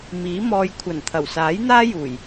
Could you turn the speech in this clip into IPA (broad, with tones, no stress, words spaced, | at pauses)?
miː˨˥mɔː˧j kʷʰɐ˨˩n t̪ʰɐ˨˩wsaː˨˥jn̪aː˥juː˨˩j